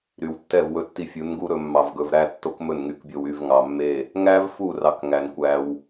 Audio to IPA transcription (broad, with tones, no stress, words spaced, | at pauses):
ɾy˨wtːɛ˦˨vwɵ˧ tːi˧fʲu˨˦nɡu˦ɾɵ˧ mːɑ˧vɡɵ˧vɾæ˦ tːo˦kmɵ˦˨nŋy˧kbʲo˧w y˦˨vŋɑ˨mːe˦˨ | ŋæ˦vfu˦˨ rɑ˦kŋæ˧n kʷæ˧w